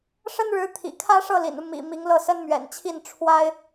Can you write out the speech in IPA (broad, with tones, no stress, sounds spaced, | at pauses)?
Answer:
ʂ ə˥ n ɻ ɻ̩˧˥ t̪ʰ ḭ˨˩ kʰ ä˥ ʂ ɤ˥˩ l ḭ˨˩ n u˦ m ḭ˨˩ m i˧˥ ŋ l ɤ˥˩ s ə˥ n m ɥ ɛ̰˨˩ n t͡ɕʰ i˥˩ n ʈ͡ʂʰ w a˥ ɪ̯